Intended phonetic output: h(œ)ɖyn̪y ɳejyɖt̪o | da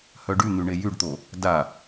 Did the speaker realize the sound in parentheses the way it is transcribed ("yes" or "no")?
yes